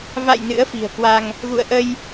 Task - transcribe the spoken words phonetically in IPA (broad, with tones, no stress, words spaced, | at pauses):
va̰˧˨j nɨ̰˧˥ə̯fi̤˨˩ə̯kwa˧ŋ | ɣṵ˧˨ə̯ʔə˧j